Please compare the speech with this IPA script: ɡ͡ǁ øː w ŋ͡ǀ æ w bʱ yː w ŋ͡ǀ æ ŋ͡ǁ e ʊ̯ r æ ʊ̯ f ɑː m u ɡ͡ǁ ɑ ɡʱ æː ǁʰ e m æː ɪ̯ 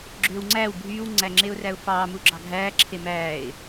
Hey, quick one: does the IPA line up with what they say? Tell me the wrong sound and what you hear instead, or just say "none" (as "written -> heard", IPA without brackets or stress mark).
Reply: none